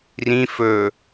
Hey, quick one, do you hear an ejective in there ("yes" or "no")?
no